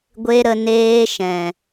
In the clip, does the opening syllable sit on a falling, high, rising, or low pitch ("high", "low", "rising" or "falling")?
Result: high